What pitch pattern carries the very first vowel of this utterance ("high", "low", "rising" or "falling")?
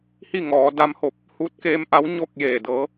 falling